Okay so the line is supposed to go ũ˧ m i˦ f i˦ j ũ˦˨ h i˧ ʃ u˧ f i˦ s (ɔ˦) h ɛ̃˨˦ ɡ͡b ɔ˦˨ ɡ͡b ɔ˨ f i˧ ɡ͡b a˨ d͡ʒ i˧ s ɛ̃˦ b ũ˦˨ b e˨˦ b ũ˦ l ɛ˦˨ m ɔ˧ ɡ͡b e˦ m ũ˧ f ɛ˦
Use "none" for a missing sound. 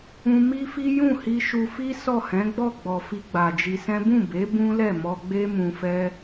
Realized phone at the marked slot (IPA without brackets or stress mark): ɔ˦˨